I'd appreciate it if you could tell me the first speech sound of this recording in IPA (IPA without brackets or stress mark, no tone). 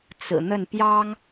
t͡s